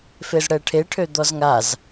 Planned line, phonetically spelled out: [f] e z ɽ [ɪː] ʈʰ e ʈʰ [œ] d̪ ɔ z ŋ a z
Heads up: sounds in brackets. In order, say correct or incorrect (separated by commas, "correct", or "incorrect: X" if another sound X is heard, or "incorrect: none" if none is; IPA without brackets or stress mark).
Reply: correct, incorrect: ɛː, incorrect: ø